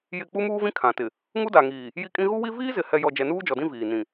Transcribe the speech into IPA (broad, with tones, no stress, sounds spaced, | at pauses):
j ɪ˦˨ k͡p u˦ m uː˦ v ĩ˦ kʰ ã˨ t ɪ˨ | ŋ u˦ d a˨ ŋ iː˨ | j i˦ kʼ ĩ˦ ɣ u˦ w i˦ v iː˦ z ɪ˨ h ɛ˨ j ɔ˨ d͡ʒ ɛ˨ n uː˦ d͡ʒ ɔ˨ d ĩ˦ v iː˨ n ĩ˨